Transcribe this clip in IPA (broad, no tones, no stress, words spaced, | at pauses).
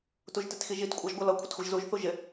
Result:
tuʒtɪtxiʒit kʷʼɑʒɡʷʌlʌ kʷʰɪtxʷiʒzuʒ θuʒɪ